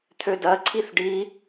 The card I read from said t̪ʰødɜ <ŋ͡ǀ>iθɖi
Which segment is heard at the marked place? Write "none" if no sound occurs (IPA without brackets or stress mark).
ǀʰ